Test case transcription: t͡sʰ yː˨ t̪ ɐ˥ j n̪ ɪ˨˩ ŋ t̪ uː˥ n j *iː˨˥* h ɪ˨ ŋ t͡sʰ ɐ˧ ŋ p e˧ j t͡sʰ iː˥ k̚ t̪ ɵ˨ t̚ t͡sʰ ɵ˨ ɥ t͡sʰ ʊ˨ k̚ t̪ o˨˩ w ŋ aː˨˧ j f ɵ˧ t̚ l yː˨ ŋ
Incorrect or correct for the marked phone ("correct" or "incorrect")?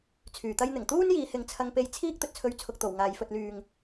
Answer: incorrect